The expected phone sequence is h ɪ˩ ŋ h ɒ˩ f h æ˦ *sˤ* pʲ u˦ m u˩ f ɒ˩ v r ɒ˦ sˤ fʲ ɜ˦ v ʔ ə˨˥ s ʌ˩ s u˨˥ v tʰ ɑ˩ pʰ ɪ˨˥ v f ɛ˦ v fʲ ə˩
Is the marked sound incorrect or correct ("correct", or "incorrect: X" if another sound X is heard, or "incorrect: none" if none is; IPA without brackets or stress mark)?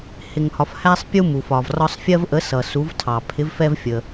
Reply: correct